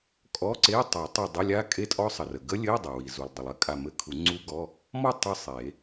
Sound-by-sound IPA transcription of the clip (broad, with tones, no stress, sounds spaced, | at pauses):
kʼ ɔ˧˥˧ ǀ e˧˥˧ tˤ a˨˩˦ tˤ i˧˩ dˤ ə˧˥˧ lʲ a˦˥ kʼ e˦˥ tʼ ɔ˦˥ sˤ ə˩ r ə˩ ɡ ə˦˥ lʲ ɘ˧˥˧ i̯ dˤ a˩ w i˩ z u˩ lˠ dˤ ə˩ lˠ ɘ˦˥ kʼ a˧˩ m ɘ˧˥˧ kʰ u˨˩˦ ŋ͡ǀ u˦˥ ɡ ɔ˧˥˧ | m ɔ˥˧ tˤ ɘ˥˧ sˤ e˨˩˦